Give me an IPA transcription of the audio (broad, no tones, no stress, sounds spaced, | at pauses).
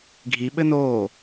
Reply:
ɡʱ i ɓ ɘ n oː